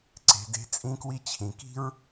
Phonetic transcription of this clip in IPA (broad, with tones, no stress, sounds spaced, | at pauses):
ǀ e̤˩ d e̤˧ t͡sʼ ĩ˧ k w i˧ t͡ɕʰ ĩ˩ k i̤˥ ɹ